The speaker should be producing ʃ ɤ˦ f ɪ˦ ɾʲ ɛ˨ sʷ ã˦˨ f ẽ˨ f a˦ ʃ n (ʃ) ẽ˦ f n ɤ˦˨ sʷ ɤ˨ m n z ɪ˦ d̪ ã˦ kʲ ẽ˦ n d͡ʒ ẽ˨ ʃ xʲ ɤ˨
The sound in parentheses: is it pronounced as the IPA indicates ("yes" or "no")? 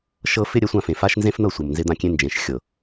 no